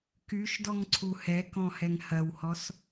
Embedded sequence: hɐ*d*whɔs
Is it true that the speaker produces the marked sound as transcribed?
no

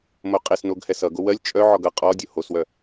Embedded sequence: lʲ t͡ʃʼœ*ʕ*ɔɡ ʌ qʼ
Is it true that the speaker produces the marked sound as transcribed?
yes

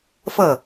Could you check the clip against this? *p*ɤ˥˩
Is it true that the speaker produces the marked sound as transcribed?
no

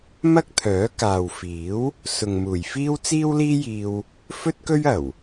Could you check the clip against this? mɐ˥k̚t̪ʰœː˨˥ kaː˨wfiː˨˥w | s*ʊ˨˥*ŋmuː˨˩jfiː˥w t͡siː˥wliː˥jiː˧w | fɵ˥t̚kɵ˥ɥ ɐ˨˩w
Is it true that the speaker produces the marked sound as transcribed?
no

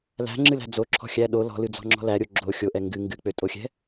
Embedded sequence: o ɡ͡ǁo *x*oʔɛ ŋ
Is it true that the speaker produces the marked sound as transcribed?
no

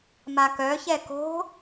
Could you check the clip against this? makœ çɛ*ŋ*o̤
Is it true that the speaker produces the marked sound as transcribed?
no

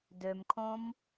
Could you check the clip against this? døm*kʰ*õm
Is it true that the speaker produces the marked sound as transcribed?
yes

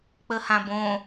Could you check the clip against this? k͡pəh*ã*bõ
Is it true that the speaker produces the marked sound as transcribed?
yes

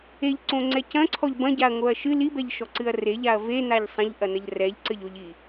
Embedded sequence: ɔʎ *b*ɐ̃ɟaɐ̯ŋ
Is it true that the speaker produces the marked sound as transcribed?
yes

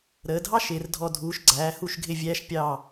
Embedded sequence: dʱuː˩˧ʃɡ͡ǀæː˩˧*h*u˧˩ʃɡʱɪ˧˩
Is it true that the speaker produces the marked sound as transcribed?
yes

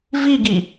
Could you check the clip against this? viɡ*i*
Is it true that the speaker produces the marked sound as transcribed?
yes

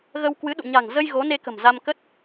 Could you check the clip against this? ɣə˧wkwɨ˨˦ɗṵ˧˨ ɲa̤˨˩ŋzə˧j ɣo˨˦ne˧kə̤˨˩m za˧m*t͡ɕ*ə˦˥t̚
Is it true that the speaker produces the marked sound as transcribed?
no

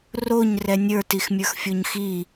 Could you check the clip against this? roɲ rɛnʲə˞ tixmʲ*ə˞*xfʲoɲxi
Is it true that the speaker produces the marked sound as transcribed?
yes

